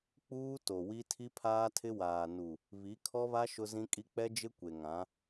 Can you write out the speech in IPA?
k͡p uː˦ t o˨ w i˦ tʰ i˦ pʰ aː˦ tʰ ɪ˦ w aː˨ n u˨ | β i˨˦ kʰ ɔ˦ β a˦ ʃ ʊ˦ z ĩ˦ kʼ i˦ k͡p ɛ˦ d͡ʒ ɪ˦ kʷ e˨ ŋ ã˨˦

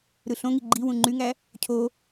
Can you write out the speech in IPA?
ɾ ɯ ɬ õ ŋ i ɡ͡ǃ i w ũ ŋ͡ǃ y ŋ æ | cʰ o

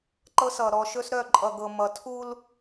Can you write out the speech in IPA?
ǃ ɤ˦ s ʌ˨ ɾ ɔ˨ ʃ ɵ˦ s ɾ œ˦˨ ǃʼ ʌ˨ ɡ ɤ˨ m ʌ˨ tʰ u˦ l

